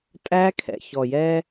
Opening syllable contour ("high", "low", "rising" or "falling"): high